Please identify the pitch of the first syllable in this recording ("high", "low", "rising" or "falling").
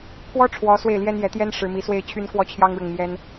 high